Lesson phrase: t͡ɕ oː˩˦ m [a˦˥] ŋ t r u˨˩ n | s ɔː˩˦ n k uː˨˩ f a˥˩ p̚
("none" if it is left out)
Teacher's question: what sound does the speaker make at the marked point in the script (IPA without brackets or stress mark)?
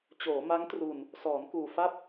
a˦˥